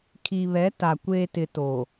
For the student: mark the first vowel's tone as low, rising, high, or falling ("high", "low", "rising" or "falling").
low